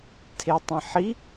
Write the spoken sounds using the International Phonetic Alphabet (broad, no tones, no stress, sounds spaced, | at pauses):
tʰ e tˤ ĩ ħ i